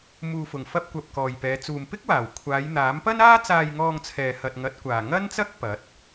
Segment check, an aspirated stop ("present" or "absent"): present